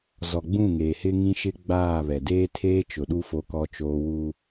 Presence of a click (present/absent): absent